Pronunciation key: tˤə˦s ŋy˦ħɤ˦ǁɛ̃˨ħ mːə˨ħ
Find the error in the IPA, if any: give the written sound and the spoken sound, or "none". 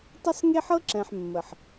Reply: y˦ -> e˦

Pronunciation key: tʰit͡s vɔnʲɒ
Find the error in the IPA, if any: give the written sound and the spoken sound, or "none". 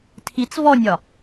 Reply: none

